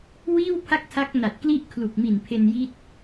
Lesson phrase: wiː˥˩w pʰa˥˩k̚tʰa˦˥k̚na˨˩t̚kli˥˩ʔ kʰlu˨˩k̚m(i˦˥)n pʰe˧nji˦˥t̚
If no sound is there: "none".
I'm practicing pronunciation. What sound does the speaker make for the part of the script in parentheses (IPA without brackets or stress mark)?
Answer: i˨˩